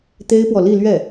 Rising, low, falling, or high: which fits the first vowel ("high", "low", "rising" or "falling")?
high